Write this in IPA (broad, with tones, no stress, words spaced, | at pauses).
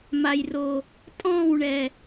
ma˨jro˨ | tʼɔ̃ː˦˨wɳɛ˨